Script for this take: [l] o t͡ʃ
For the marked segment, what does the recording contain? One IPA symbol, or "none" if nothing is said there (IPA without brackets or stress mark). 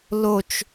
l